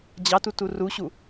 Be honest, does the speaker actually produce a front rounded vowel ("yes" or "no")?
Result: no